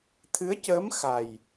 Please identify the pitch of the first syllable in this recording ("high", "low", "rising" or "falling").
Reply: rising